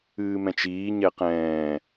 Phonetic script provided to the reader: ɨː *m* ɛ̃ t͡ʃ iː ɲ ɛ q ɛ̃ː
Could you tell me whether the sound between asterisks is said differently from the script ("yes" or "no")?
no